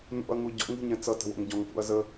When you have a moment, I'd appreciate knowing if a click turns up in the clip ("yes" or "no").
no